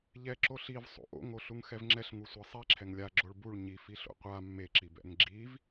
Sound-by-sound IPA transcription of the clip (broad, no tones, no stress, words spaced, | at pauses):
ʎɛ ǁoɬiv sˤo̰ʔo̰ŋoɬuŋ xɛvŋ͡ǁɛɬŋu sʷasˤiǁʰɛŋ lʲa ɡ͡ǁoɭbuɭ ɲifiɬo̰ qʷa mːeǁibɛ̰ŋ ɡ͡ǁiv